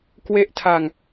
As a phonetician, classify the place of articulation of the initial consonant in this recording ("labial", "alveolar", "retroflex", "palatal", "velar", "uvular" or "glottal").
velar